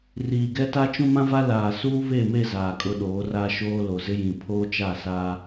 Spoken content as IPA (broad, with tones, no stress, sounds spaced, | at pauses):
r iː˨ ɡ ɛ˦ t a˦ t͡ʃ ũ˦ m ã˦ v a˦ l aː˨ s uː˦ β e˦˨ m e˦˨ z aː˨ kʼ ʊ˦ ɗ oː˨˦ r a˦ ʃ oː˦ l o˨ z ɪ˦ j ĩ˨ pʰ oː˦ t͡ʃ a˦˨ s aː˦